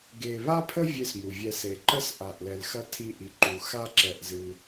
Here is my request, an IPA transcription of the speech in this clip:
ɡ e˨ β a˦ pʰ ə˦ vʲ e˦ s m u˨ vʲ ɛ˧ s e˨ ǃ ə˦ s ʔ a˨ ʔ l ɛ˨ l x ɐ˧ tʰ i˧ ʔ i˨ ǃ u˨ x a˦ ǁ ɛ˧ ʔ z ɨ˧

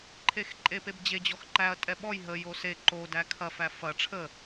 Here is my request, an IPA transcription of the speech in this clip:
ǃʰ e x ǃʼ e p e b d͡ʑ e d͡ʑ ɔ x ǃ æ ɐ̯ tʼ ɛ ɓ ɔ j ɦ ə j o s e ǃ o d æ kʰ ɐ f æ f ɐ ʈ͡ʂʰ ə

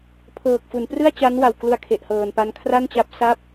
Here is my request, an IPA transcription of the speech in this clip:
pʰ ɤː˨˩ k̚ f u˩˦ n p r ɯ˥˩ a̯ t͡ɕ a˦˥ n w a˨˩ w k l u˧ a̯ kʰ e˨˩ ʔ h ɤː˨˩ n p a˦˥ n kʰ r a˥˩ n t͡ɕ a˦˥ p̚ s a˥˩ p̚

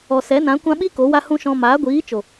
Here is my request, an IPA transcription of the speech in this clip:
ɔ˨ s ɛ˨˦ n ã˨˦ kʷ ã˦ ɓ i˦ k o˨˦ w a˦ h ũ˦ ʃ ɔ̃˧ m aː˨˦ ɡʷ iː˨˦ t͡ʃ o˨

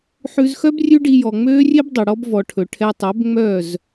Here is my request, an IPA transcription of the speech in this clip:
ħ ʉ˧ z x œ˦ b rʲ ʉ˦ ɖ i˧ j ɔ˨ ŋ͡m øː˦ rʲ e˦ b dˤ ɵ˨ ɽ ɔ˦ b v ɔ˨ ʈʰ ɵ˨ ʈʰ ɛ˧ tˤ ø˨˦ b ŋ͡m œ˦˨ z

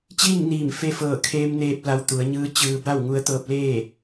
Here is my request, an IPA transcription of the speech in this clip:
t͡ɕ iː˥˨ ŋ n iː˧˩ m f e˧ f ɤː˧˩ kʰ eː˧ m n eː˧ p̚ l a˧ w t̪ u˩˧ ə̯ ɲ ɯː˧˥ t͡ɕ ɯː˧ b a˥˨ w ŋ u˧˥ ə̯ t̪ ɤː˧ p̚ l eː˥˨

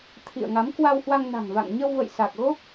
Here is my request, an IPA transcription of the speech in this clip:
t̪ʰ ḭ˧˨ ə̯ ŋ a˨˦ m k w a˧ w h w a˧ ŋ n a̤˨˩ ŋ v a̰˧˨ ŋ ɲ ə˧ w v ə̰˧˨ j s a˨˩ k̚ ɣ o˦˥ k̚

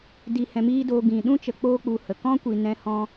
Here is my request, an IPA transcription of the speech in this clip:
d i˧ h ɛ̃˧ m iː˦ d oː˧ ɡ ĩ˨ ɗ ũ˦ t͡ʃ ə˧ k͡p oː˦ k͡p u˧ h ə˨ k ɔ̃˦ kʷ i˨ n ɛ̃˦ h ɔ̃˦

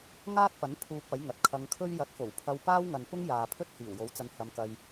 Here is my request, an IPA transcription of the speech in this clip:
ŋ aː˥ t̚ p ɐ˨˥ n pʰ uː˧ p̚ ɐ˨˥ j ŋ ɐ˨ t̚ kʰ ɐ˧ ŋ kʰ ɵ˥ ɥ j ɐ˨˥ t̚ f o˨˩ w pʰ ɐ˧ w p aː˥ w ŋ ɐ˨ n p ʊ˥ ŋ j aː˨ pʰ ɵ˥ t̚ h iː˨˩ w j o˨˥ w t͡s ɐ˧ n h ɐ˧ m k ɐ˧ j

